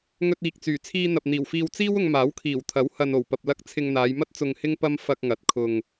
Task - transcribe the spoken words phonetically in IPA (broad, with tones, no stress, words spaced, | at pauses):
ŋɵ˧t̚iː˨k̚t͡syː˨˩ t͡sʰiː˧n̪ɐ˨p̚n̪iː˨˩wfiː˧w t͡siː˥wʊ˧ŋmaː˨˥w kʰiː˨˩wt̪ʰɐ˨˥w hɐ˨no˨˩wpɐ˨p̚lɐ˧k̚ t͡sʰɪ˧ŋn̪aː˨˧jmɐ˥t̚t͡sʊ˧ŋ hɪ˥ŋpɐ˥m fɐ˧k̚ŋɐ˨˥t̚kʰʊ˧ŋ